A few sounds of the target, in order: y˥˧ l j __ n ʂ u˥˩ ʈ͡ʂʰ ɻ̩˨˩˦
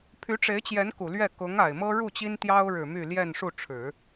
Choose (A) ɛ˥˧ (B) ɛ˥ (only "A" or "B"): A